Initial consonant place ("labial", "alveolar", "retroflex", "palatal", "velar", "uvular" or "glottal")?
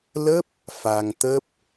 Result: alveolar